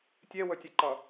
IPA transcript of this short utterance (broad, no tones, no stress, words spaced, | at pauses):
tʲewɵtʲɛǃʌ